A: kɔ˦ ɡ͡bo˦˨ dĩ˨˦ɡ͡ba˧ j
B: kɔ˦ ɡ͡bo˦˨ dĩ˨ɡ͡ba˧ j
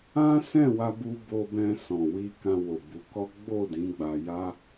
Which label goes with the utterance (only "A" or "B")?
A